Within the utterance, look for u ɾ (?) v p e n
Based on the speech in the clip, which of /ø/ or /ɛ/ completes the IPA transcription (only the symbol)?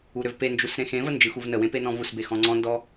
ø